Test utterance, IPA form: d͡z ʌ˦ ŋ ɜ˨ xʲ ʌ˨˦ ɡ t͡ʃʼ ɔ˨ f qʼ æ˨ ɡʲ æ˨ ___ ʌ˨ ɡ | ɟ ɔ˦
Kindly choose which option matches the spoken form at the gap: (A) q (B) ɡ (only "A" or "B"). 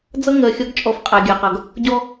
A